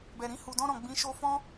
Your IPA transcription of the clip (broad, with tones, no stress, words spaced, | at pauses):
bɛ˨ɾĩ˧ hu˨dɔ̃˧ɾɔ̃˨ ɡ͡bĩ˨˦ʃo˧fɔ̃˦